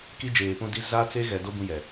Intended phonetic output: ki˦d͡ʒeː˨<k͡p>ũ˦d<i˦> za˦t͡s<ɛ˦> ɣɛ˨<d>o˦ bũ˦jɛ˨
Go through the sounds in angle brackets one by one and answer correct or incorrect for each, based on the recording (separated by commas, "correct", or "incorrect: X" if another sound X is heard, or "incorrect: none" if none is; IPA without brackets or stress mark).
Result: incorrect: p, correct, incorrect: e˦, correct